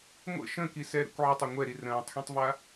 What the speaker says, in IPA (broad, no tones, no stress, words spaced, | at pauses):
ŋʷə̰ ʃə̃kisɛɾə̰kʷ ʕətˤa ŋʷɛɾi rə̃ːtˤxĩtˤva